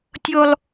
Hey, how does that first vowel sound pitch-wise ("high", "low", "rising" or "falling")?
high